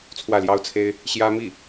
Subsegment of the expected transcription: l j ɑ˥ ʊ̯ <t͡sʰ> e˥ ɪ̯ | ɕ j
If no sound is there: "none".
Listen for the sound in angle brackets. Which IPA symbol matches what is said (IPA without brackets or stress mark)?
t͡sʰ